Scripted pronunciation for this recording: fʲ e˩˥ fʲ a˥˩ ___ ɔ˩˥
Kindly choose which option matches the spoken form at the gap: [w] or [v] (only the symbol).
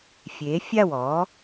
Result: w